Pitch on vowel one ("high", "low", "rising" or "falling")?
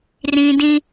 high